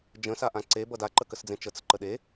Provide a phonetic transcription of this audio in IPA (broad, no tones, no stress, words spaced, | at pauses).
d͡ʒə̃sa ʔãǀe bʌdaǃə kəsd͡zẽt͡ʃə t͡səǃəɗe